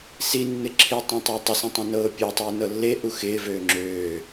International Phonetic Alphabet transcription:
sinːɪ ǁʰitˤĩtˤe tˤɪsũtˤẽnɤː pʲotˤiːnɤ lːeʔu xɪːvøː ŋ͡ǁøː

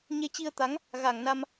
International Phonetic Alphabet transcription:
ɲe˧t͡ɕi˧ə̯t̪a˨˦ŋ | ɣa˧˩ŋna˧m

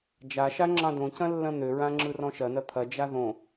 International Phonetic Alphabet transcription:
d͡ʒaʃa ŋ͡ǁɑ̃dõcɐ̃ lːɐ̃n̪øɹã ŋ͡ǁɯrɔ̃ʃɐnɐ t̪ʰɐd͡ʒa ðõ

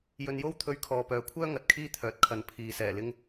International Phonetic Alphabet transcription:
jɵ˧njo˥wt̪ʰɵ˧ɥ kʰɔː˨pœː˨kʷʰœː˥ ŋɐ˨t̚kʰiː˥ t̪ʰœː˨t̚kʰɐ˨˥n pʰiː˨ sɛː˨˩ lɪ˧ŋ

